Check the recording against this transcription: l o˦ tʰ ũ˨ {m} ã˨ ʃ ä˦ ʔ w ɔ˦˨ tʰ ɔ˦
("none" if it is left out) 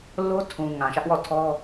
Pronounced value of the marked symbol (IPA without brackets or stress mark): ŋ